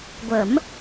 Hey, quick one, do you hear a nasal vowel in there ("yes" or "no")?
no